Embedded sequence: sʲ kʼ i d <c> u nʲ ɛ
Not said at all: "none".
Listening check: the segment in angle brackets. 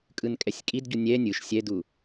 ɟ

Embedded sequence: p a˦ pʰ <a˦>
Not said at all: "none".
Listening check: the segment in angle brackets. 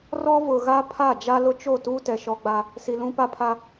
a˦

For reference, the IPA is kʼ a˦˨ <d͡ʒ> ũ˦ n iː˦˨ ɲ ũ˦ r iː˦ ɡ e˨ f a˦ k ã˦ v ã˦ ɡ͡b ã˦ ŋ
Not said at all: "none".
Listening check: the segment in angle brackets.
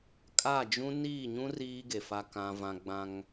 d͡ʒ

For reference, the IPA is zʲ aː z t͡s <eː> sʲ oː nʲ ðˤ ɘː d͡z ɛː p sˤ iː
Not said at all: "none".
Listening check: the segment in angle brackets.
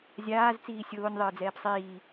iː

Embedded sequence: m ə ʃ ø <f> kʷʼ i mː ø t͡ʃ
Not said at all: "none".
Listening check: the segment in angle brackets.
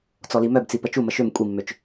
m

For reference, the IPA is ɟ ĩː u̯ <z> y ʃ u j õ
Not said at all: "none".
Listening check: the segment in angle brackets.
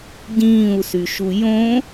s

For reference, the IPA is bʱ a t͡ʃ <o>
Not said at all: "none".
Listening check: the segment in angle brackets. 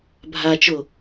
o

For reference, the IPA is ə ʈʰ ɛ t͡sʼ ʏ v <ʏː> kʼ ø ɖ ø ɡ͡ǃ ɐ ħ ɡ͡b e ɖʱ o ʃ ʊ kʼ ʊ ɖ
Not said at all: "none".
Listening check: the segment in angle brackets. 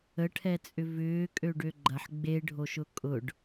ʏː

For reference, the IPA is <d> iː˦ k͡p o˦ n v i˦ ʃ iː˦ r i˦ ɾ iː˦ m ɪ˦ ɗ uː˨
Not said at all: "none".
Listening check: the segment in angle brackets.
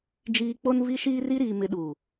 d͡ʒ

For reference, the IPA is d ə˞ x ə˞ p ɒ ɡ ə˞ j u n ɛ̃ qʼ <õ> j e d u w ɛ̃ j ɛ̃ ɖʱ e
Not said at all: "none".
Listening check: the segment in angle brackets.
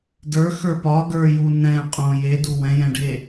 õ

